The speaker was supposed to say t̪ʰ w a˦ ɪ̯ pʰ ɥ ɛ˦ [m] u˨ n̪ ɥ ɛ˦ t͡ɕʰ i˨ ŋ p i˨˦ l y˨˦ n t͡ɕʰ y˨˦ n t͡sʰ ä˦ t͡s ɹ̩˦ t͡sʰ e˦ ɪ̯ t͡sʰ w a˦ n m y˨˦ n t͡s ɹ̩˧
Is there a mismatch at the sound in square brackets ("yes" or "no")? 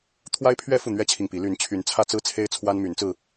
yes